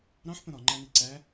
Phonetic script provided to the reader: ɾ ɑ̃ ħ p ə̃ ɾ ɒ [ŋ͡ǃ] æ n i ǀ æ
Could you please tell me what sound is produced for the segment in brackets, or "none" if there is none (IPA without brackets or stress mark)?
ŋ͡ǃ